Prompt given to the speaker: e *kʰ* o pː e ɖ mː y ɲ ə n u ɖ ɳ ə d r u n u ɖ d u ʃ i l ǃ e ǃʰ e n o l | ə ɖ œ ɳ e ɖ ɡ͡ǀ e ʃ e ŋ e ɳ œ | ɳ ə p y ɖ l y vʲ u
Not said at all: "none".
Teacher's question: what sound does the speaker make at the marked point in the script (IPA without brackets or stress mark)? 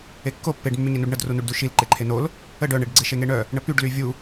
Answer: kː